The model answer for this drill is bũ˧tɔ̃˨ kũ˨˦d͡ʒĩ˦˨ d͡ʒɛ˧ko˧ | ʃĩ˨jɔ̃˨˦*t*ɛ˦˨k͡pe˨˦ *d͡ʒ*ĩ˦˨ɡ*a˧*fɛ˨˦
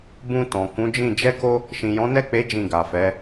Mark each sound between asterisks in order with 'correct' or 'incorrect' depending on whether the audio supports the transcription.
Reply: incorrect: n, correct, incorrect: a˨

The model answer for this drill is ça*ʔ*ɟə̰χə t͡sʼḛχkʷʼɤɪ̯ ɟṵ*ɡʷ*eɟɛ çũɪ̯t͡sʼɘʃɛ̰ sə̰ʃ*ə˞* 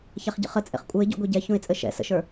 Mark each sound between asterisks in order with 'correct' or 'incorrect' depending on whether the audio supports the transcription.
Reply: incorrect: χ, correct, correct

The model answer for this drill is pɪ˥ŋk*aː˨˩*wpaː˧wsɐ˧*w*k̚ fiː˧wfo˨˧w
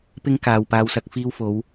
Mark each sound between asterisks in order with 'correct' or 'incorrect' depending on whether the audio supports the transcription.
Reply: incorrect: aː˨, incorrect: none

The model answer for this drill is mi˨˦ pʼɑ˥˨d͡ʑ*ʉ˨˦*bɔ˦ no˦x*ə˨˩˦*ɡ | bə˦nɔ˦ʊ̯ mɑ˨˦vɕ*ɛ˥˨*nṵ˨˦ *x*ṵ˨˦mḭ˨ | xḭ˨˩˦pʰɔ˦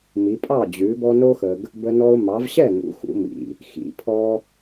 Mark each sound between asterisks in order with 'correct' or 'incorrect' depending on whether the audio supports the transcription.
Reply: correct, incorrect: ə˨, correct, correct

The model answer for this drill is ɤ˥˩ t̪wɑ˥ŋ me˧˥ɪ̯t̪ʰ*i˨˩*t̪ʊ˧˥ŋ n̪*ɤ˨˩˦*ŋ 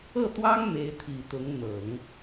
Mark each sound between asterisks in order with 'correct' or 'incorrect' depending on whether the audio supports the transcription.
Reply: correct, correct

